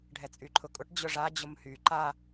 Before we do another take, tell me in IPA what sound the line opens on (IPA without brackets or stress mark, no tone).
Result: ɖʱ